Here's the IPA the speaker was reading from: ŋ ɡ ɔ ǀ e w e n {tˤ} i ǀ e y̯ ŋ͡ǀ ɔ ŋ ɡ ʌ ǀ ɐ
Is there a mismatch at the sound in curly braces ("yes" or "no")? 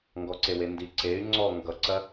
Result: yes